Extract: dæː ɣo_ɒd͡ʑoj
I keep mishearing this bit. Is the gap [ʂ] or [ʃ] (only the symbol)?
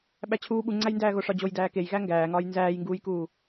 ʂ